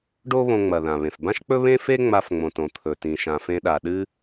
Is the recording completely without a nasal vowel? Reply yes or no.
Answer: no